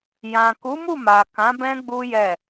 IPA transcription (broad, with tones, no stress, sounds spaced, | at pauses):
j ã˨ k u˨˦ m u˦˨ m a˨ k ã˨˦ b ɛ̃˦ ɡ͡b u˦ j ɛ˦˨